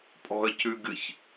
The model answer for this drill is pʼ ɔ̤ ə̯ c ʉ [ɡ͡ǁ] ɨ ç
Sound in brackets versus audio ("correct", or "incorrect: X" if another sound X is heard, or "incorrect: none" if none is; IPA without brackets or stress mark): incorrect: ɡ